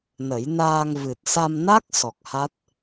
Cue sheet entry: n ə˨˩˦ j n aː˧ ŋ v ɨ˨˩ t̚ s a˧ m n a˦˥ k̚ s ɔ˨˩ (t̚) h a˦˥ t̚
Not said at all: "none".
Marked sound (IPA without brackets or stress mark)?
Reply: k̚